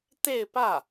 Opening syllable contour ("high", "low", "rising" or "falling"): falling